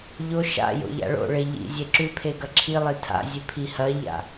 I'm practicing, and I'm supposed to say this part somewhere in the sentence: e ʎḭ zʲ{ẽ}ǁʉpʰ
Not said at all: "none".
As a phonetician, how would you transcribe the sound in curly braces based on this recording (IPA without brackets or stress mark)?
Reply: e